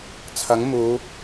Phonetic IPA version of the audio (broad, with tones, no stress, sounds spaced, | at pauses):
t͡sʰ ɐ˨˥ ŋ m uː˨˧